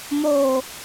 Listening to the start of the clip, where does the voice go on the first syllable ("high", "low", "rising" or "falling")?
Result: low